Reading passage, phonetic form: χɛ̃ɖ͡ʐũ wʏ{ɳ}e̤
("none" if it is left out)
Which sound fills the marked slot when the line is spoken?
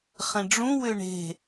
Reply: ɳ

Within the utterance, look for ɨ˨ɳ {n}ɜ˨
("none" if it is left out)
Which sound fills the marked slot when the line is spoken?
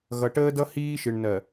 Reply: n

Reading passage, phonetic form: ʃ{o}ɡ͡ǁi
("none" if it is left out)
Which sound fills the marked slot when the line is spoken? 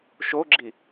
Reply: o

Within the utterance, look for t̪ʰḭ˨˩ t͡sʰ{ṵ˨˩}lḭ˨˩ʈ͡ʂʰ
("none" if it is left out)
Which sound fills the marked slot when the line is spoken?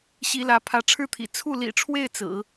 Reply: u˥˩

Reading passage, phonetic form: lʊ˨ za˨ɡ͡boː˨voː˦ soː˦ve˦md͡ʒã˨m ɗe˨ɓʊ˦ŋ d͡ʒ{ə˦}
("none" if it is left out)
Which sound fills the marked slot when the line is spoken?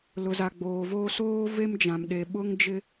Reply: ɪ˦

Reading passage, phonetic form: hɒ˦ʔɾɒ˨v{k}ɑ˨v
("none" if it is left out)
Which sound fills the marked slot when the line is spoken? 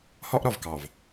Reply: k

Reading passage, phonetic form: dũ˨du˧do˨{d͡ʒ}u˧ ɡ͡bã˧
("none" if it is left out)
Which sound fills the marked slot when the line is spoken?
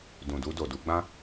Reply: d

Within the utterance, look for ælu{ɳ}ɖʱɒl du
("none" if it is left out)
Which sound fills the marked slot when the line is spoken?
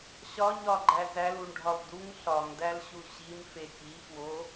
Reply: ɳ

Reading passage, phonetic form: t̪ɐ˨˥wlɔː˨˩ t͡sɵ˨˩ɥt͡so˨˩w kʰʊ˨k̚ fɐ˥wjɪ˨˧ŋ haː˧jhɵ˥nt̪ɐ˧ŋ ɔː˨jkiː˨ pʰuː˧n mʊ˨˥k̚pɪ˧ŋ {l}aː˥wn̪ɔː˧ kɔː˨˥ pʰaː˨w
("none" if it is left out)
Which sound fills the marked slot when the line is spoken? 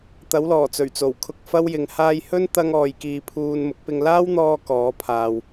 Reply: l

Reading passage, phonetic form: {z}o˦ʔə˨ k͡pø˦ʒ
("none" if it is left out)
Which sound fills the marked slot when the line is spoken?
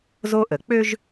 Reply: z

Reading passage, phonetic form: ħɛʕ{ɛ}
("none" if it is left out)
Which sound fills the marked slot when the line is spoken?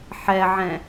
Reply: ɛ̃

